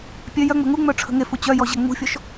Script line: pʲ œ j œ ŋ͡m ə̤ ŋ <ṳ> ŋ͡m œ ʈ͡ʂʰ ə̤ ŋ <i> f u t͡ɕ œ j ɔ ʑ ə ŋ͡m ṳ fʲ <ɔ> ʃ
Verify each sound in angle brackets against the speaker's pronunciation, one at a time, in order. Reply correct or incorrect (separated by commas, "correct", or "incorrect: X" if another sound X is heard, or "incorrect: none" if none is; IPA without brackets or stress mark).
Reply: incorrect: u, incorrect: e, correct